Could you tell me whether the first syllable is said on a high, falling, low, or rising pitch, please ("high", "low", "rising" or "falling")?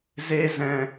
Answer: high